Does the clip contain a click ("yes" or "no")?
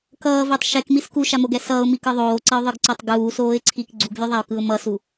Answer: yes